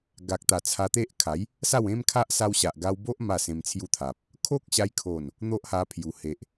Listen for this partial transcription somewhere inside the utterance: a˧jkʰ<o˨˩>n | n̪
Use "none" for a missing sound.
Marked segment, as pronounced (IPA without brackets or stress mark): o˨˩